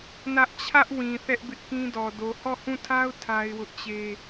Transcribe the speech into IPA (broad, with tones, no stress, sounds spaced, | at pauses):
n ä˦ ʔ t͡ɕʰ ä˦ ʔ w ĩ˨ θ ɛ˦ ʔ b ɪ˦ ʔ k ĩ˦ d ɔ˨ d o˨ h ɔ˦˨ h ũ˦˨ tʰ a˦ ʊ̯ tʰ a˦ ɪ̯ w ʊ˦ ʔ t͡ɕ e˦